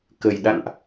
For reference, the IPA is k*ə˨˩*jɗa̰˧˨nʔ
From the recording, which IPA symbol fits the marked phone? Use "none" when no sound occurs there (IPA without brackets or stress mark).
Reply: ə˨˩